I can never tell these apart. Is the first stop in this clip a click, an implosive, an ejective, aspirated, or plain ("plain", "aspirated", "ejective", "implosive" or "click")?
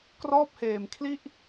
plain